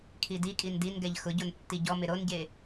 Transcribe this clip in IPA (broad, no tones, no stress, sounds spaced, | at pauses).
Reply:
kʰ i d i kʼ i n d i n ɡ ɛ ʎ x ʊ ɟ o n tː i ɟ ɔ m ɪ ɾ o n ɟ e